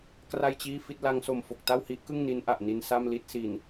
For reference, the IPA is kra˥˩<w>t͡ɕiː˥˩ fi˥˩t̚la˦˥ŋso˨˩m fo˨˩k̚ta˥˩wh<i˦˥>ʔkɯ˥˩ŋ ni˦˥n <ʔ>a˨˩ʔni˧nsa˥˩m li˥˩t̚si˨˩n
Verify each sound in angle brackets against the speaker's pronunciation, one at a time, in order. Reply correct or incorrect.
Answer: incorrect: j, correct, correct

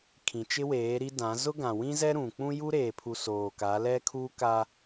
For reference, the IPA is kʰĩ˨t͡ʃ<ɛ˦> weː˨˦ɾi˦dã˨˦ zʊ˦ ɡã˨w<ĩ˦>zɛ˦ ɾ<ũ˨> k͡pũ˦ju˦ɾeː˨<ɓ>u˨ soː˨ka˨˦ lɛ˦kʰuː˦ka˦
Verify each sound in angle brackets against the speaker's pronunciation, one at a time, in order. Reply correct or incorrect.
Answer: incorrect: ɪ˦, correct, correct, incorrect: pʰ

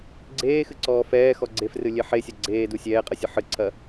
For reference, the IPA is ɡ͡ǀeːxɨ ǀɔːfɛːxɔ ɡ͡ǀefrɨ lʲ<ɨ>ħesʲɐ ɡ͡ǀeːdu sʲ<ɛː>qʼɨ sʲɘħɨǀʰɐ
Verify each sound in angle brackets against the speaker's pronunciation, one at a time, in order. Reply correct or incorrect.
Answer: incorrect: e, correct

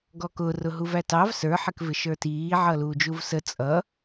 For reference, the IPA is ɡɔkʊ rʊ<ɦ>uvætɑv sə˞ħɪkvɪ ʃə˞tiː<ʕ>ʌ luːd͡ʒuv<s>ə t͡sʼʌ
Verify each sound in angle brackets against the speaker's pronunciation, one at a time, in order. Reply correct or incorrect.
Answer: correct, correct, correct

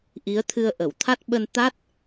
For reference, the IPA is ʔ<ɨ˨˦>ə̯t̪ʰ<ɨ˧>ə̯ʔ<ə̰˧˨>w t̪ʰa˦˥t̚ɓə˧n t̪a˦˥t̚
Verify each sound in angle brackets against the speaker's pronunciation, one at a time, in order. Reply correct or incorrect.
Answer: incorrect: i˨˦, correct, incorrect: ə˧˩

